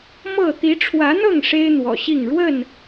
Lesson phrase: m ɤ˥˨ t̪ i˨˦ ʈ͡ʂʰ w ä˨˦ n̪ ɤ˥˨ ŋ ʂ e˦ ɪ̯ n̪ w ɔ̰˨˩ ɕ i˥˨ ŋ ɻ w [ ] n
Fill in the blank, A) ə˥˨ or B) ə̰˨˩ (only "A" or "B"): A